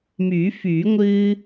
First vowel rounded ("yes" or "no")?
yes